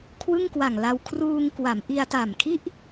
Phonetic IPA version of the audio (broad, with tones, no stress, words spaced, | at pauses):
kʰwɯ˥˩ŋkwa˨˩ŋla˧w kʰruː˧ŋkwa˩˦mʔi˧a̯ta˨˩m kʰi˥˩ʔ